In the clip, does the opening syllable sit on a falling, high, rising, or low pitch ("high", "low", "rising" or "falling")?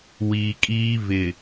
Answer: low